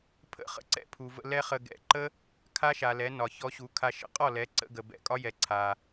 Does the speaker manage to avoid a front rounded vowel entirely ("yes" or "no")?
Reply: yes